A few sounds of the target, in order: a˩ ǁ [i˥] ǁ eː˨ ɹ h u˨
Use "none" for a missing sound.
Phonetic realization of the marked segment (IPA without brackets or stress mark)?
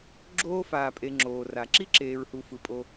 i˥